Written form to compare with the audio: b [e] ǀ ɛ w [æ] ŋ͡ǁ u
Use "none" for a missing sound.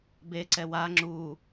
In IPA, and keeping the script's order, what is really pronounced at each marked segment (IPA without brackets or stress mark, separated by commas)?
e, a